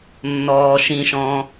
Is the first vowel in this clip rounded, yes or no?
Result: yes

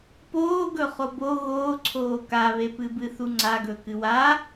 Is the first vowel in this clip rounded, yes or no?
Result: yes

